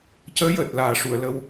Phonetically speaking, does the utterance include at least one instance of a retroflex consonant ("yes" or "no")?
yes